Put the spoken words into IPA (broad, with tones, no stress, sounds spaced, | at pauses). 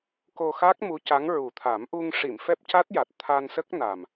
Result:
k o˧ x a˦˥ k̚ m u˧˥ c a˧˥ ŋ ɹ u˨˩ t̪ʰ a˨˩˦ m ʔ u˧ ŋ ʂ i˨˩˨ m f ɛ˦˥ p̚ c a˦˥ t̚ j a˨˩ t̚ t̪ʰ a˧ n s ə˦˥ k̚ n a˨˩ m